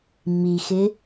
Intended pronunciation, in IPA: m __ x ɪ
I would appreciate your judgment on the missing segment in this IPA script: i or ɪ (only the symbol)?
i